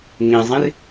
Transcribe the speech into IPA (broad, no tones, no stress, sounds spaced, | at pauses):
ŋ ĩ zˤ ĩ r